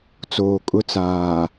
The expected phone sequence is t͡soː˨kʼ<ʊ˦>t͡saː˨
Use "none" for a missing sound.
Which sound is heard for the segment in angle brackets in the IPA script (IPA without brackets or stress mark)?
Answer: ʊ˦